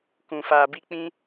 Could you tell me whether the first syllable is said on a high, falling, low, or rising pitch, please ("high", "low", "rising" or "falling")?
low